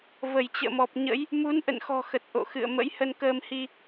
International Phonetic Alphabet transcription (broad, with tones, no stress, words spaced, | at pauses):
və˧˩jt͡ɕə̰ː˧˨mɔ˨˩p̚ɲə̰˧˥j | mu˨˦nʔə̰˧˨nxɔ̤˨˩ xə˨˩t̚ʔo̰˧˨xɨ̰˧˨ə̯ mə̰˧˥jhə˧nkəː˧mhi˧